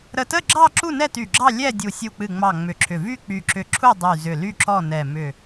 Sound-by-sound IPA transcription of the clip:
ɾə˧˩tə˥˨ɡ͡ǁɑ˥˨ ǁu˥˨nɛ˥˨ty˧˩ɡ͡ǁɑ˥˨ lʲɛ˥˨ dʲu˧˩ sʲu˧˩k͡pɨ˧˩ ŋ͡mɑ˧˩ ŋ͡mʏ˧˩ǁʰʏ˧˩ vy˥˨ k͡py˧˩ǁʏ˧˩ ǁʰu˥˨ dˤy˧˩ zʏ˧˩ly˥˨ǁɔ˥˨nɛ˧˩ mʏ˧˩

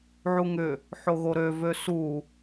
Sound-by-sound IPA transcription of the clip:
ʕuŋʏ | ħoɣoɾø vøsu

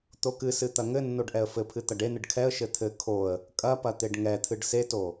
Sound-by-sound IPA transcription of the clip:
t̪okɨsɨ t̪ɐŋɘnːoɖ ʔɛə̯fɘpʰɨ t̪ɐɖenɨɖ kʰɛə̯ʃɘ t̪ʰɘ kʰoə̯ | kʼɐpɐ t̪eɖŋɛt̪ʰɨɖ seto

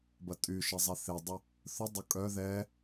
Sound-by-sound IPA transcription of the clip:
bɐtʼyʃɪ zˤɛθedˤɪ | θʊ dˤʊkʼœ ðɛ

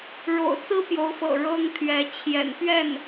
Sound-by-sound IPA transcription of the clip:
ɻo̰˨˩ʊ̯t͡sɹ̩˥ pjo˧˥ʊ̯fɤ̰˨˩ ɻɤ˥ŋ t̪ʰɥɛ˧˥ t͡ɕʰjɛ̰˨˩npɥɛ˥˩n

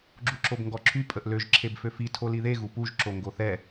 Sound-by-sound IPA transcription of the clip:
ɡ͡ǁuǁobŋɡɔǁʰy pʼəʔløʒ ǁʰebføfi tʰoliðe ɣupuʒ ǁoŋɡoθɛ

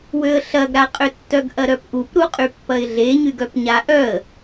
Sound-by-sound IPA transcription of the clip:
wøə̯ɬɐɡɾaqʼʏ tːœɡʔɐɾœpʔup ɾuqʼypːɐɪ̯ɮe ɲyɡœpɲaʔœə̯

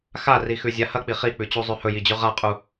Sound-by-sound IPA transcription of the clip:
xarixʉ zʲahɐk͡pi χik͡pʉt͡ɕu zˤʉhɵjid͡ʑʉ ʁaqʼu

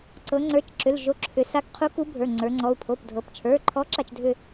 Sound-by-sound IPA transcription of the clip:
ǀɤ˩˧ ŋ͡ǀə˞˩˧˩t͡ʃǁʏ˩˧˩l ʒo˨˥ǁʰʏ˩˧ sa˨˥kqʰu˨˥ ku˨˥bʱə˞˩˧˩ ŋ͡ǀə˞˩˧ŋ͡ǀɔ˩˧˩u̯ pʰo˩˧˩pdʱɤ˩˧pt͡ʃʰə˞˩˧˩ǃʰɔ˨˥ ǁa˧˩˧t͡ʃdʱʏ˦˨

